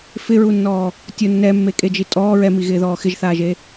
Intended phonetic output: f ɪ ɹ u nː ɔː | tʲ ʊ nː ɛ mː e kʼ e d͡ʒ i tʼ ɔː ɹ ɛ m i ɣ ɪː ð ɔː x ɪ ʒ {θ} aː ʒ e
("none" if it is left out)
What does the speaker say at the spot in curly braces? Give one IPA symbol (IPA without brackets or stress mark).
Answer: θ